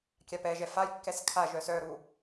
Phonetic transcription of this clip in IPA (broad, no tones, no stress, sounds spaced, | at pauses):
kʲ a p ɛ ʒ ɛ f a j kː ɛ s kʰ a ʒ œ s œ ɾ u